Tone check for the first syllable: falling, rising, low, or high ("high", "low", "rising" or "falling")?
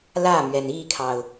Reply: falling